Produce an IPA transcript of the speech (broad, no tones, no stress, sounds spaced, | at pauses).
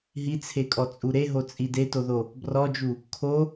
ɦ i t͡sʰ e kʼ ɔ t͡sʼ u ɾ e ɦ o t͡sʼ i d e t o ð o | b r ɔ d͡ʒ u | kʰ o